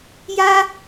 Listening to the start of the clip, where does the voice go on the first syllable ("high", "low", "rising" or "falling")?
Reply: high